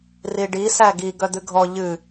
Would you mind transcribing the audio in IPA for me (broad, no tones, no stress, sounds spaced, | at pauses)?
r i ɖ i s æ ɡ i ɡ œ d̪ ɨ ɡʱ ɔ ʎ ɨ